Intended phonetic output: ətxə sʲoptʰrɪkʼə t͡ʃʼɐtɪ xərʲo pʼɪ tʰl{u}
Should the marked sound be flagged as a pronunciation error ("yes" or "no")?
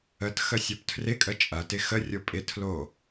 yes